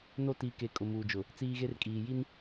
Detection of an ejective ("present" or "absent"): present